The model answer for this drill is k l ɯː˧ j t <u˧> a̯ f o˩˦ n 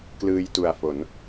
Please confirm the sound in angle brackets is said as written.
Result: no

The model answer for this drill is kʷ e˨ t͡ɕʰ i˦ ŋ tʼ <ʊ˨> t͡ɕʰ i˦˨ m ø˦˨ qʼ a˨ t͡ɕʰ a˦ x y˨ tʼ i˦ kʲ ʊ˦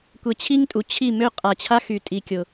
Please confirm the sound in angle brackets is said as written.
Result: no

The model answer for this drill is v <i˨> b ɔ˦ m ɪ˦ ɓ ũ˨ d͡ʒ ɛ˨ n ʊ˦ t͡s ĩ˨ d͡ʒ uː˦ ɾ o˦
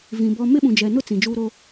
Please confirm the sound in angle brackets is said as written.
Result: no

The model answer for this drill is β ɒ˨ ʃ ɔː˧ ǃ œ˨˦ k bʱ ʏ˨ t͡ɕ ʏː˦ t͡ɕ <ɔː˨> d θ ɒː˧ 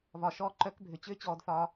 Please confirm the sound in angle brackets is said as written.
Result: no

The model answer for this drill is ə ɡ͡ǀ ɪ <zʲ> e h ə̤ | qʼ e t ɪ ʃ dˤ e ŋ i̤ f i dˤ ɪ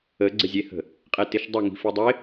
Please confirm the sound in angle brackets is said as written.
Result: yes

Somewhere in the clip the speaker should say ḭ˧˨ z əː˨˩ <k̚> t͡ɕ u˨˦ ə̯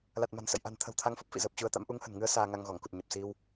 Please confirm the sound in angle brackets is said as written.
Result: no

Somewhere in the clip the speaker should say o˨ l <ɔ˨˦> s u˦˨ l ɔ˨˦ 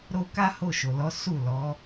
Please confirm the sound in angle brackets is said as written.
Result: yes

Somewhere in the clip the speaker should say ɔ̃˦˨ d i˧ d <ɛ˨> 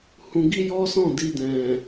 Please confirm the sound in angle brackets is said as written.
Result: no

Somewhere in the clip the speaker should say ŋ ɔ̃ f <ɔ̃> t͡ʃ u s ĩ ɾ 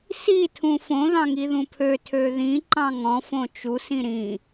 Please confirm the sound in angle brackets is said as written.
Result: no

